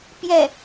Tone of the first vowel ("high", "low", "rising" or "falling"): falling